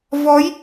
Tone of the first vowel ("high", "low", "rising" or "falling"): rising